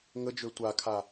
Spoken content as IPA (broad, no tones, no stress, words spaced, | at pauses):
ŋəd͡ʒø tʷakʰa